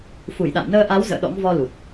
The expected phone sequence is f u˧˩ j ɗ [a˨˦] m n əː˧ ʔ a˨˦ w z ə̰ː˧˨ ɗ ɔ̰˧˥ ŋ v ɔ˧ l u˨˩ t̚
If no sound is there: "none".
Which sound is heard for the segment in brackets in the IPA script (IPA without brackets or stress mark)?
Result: a̰˧˨